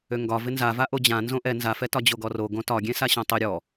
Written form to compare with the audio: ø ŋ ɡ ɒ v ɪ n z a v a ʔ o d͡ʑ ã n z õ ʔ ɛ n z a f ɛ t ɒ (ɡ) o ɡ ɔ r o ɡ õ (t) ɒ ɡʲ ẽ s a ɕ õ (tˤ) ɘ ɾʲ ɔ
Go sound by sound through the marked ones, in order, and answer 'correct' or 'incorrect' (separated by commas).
incorrect, correct, correct